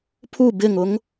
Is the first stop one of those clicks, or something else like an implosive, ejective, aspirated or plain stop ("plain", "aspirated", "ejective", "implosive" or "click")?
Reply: aspirated